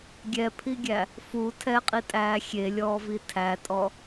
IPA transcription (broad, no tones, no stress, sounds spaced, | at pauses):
ɡʲ ɛ pʰ i ɡʲ æ | f u tʰ ɛ qʼ i tʼ æː xʲ e lʲ ɔː v i tʰ æ tʼ ɔ